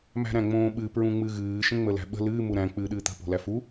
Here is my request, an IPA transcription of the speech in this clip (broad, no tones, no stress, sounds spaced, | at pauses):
m æ̤ ɾ æ̃ ŋ͡m õː ɓ ɨ p ɹ ũ ŋ͡m ɨ ɣ ɨː ʃ ə̃ ŋ͡m ə l æ̤ ɓ ə̤ l ɨː m u ɾ æ̃ k͡p ɨː ɗ ɨː t̪ ə̤ p o̤ l æ f u